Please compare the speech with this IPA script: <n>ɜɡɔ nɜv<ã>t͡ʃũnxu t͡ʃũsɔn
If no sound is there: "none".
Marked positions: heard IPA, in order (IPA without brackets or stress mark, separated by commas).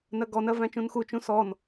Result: n, æ̃